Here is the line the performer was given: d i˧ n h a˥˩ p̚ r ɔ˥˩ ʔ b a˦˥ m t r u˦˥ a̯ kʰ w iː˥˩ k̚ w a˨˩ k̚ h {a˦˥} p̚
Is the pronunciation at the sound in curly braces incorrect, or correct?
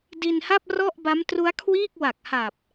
incorrect